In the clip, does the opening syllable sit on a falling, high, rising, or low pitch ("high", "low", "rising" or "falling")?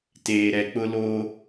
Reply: low